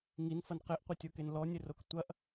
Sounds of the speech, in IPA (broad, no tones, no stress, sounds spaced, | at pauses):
ŋ i n f ɐ n q e ʔ qʷ ɐ tʲ o k e n l ɔ nʲ ɘ r o k tʷ ɐ ʔ